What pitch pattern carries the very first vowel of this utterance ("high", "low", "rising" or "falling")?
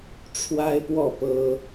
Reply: high